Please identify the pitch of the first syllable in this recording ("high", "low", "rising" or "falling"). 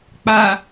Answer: low